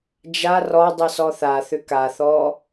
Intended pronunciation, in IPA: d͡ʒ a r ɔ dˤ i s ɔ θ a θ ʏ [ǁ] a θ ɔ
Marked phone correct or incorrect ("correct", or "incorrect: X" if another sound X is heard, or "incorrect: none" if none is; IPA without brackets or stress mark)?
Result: incorrect: k